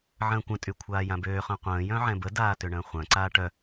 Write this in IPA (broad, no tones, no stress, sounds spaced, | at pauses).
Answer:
ʕ ə̃ː kʷ ə̃ tʼ y kʷʰ aː j ã b øː χ œ̃ qʷ ə̃ː j œ̃ ʕ ɛ̃ b ə d aː t ʏ ɳ ə̃ː χʷ œ̃ ǀ aː ʈ œ